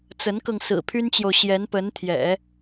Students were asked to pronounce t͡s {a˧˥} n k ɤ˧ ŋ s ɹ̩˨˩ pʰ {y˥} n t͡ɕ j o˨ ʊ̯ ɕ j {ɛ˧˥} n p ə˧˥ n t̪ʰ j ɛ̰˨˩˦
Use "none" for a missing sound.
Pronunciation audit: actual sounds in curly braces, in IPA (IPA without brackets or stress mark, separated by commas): ə˧˥, y˥, ɛ˧˥